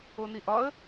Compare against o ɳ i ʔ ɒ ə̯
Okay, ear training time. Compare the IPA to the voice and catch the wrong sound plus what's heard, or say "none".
ɳ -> n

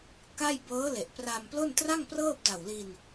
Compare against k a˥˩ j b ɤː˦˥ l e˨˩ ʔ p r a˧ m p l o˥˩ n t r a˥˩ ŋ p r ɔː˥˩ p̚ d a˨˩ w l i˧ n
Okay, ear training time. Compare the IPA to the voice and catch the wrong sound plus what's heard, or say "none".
ɔː˥˩ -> ɤː˥˩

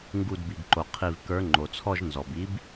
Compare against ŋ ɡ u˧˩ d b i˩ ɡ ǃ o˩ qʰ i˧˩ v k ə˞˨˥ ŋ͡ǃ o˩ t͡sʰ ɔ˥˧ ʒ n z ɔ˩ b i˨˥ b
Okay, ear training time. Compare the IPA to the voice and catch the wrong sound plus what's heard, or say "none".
none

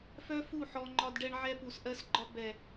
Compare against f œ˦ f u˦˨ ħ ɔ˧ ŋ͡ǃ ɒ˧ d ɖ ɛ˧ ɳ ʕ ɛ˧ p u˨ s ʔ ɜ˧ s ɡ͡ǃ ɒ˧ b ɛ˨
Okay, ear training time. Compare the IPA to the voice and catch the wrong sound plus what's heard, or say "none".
none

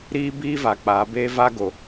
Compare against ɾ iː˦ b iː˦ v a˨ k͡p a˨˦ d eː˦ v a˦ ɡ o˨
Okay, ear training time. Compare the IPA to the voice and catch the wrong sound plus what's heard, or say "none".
d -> b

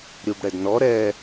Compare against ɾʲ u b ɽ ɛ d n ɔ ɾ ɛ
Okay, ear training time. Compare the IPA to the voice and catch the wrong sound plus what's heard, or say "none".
none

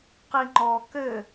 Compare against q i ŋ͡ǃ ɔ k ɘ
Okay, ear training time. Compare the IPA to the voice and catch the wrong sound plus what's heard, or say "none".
none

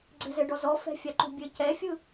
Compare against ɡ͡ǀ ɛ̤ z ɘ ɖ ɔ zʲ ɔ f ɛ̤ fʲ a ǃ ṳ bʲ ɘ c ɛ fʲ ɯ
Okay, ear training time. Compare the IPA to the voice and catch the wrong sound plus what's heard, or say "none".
zʲ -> z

